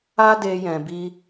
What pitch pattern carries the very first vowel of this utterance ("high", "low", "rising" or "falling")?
high